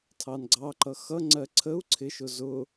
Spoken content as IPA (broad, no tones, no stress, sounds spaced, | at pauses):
tʰ ɑ n ɡ͡ǀ ɑ ǃ ʌ x ʌ ŋ͡ǀ ɜ ǀʰ ə u̯ ǀʰ ɪ ʃ ʊ z ʊ